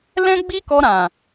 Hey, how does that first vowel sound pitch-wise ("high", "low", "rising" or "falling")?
high